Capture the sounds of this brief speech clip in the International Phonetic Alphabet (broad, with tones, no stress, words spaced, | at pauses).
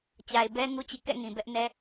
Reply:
t͡ɕa˨ɪ̯bɛ˦ ŋu˦t͡ɕḭ˦˨kɛ̰˦˨ ŋĩ˨bɛ˦ʔnɛ˦